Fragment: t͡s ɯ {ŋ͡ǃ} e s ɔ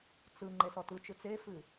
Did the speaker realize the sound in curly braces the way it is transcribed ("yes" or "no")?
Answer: yes